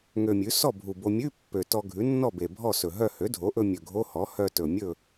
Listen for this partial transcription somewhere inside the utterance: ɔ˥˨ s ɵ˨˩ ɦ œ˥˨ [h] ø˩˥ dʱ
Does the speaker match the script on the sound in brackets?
yes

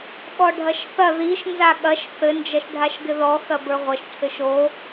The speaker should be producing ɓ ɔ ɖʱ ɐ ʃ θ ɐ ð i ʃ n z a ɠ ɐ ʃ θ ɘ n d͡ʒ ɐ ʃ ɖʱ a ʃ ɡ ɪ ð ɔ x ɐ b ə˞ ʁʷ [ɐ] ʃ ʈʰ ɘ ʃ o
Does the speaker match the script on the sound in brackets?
yes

